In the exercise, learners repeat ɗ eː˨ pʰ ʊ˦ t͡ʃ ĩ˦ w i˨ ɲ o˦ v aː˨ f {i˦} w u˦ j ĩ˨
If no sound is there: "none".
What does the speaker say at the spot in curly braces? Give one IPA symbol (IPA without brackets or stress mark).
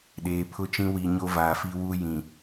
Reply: i˦